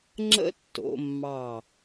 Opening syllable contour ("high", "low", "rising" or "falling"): high